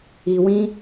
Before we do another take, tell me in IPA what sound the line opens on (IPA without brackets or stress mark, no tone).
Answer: i